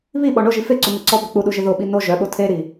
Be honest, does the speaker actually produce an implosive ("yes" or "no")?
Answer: yes